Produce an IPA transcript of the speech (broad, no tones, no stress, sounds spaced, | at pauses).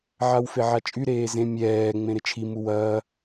ʕ a w f e ʕ a t͡ʃʼ y ɾ eː z ẽ mʲ ɛː ŋ͡m ẽ ɾ ɪ t͡ʃʰ i m u w ɐː